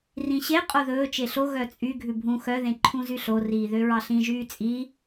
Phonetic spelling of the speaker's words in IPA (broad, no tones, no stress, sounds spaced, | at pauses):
r ĩ ɕ e qʼ o ð ɵː t͡ʃ e ɬ o ɣ œ t͡sʼ y ɡʱ ʉ bʱ ũ x œ ð ẽ ǃʰ ũ z y ɬ o r iː ð ø ɹ ɑ ɬ ĩ ʒ yː t͡sʼ i